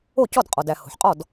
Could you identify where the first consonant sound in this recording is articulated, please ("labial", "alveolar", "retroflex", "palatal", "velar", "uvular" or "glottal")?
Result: palatal